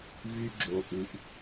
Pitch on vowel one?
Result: high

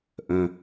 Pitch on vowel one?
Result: low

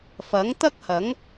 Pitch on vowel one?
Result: rising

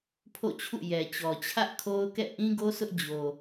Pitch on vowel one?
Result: falling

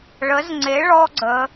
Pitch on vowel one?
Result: rising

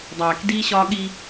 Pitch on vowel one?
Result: low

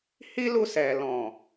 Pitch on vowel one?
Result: high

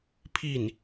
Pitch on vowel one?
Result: falling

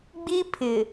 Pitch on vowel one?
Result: high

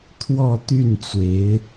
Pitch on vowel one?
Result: falling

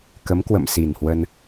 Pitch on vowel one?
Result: rising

